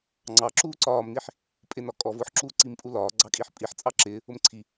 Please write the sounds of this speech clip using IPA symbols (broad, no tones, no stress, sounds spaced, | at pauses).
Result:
ŋ͡ǀ ɑ ǁ uː ǀ ɒː m n i ħ | pʼ ɪ n ɒ kʼ ɔ v ʊː ħ ǁ uː ǀ i m pʼ u l ɒː ɡ͡ǀ ɑ kʼ i ħ pʼ i ħ t͡sʼ ɑ ǁ ɪː | ʊ m ǀʰ i